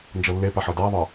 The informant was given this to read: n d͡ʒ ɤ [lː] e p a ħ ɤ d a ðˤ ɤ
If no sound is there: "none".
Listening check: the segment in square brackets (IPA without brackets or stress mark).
lː